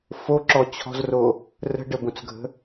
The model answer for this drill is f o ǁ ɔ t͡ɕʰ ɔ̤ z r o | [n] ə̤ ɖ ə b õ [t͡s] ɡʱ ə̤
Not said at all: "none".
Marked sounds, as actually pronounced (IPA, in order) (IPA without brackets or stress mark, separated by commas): r, t͡s